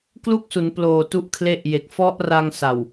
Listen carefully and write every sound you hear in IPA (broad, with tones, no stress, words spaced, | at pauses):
klu˥˩k̚su˩˦nploː˨˩ tu˦˥ʔkʰle˦˥ʔ je˨˩k̚ fɔ˦˥ʔra˧ŋ sa˨˩w